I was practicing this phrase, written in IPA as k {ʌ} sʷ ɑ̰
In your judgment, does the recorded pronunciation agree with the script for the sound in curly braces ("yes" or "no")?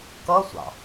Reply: yes